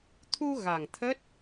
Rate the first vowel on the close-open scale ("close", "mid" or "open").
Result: close